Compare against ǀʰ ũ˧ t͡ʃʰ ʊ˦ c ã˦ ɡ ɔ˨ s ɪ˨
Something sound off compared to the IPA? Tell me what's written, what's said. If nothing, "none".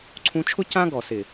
none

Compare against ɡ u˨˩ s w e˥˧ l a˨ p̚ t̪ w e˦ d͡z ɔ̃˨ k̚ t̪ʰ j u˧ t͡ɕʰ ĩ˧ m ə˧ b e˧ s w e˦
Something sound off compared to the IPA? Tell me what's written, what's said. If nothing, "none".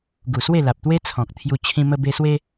d͡z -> t͡sʰ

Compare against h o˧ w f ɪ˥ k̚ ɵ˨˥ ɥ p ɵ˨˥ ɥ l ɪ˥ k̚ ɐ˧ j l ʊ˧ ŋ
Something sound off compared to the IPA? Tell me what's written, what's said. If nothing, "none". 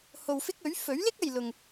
p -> f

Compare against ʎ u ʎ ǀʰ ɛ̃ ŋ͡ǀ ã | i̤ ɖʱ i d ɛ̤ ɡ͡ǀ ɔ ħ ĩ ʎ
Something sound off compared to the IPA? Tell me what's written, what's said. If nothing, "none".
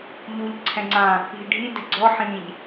none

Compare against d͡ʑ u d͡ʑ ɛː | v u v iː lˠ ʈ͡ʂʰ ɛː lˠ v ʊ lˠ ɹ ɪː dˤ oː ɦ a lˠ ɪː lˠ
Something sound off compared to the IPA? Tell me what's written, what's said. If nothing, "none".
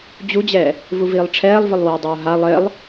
ɹ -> w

